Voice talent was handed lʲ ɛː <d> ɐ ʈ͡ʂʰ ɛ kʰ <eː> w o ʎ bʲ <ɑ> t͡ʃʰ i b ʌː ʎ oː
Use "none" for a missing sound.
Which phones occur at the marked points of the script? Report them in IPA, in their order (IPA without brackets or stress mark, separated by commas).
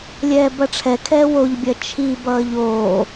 b, ɛː, ɐ